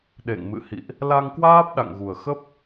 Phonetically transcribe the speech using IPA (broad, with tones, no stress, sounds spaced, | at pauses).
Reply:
ɗ ḛ˧˨ ŋ m ɨ̰˧˨ h ḭ˧˨ ʔ | l a˧ ŋ k w aː˦˥ p̚ ɗ a̰˧˨ ŋ ɣ u˨˩ ə̯ x ə˦˥ p̚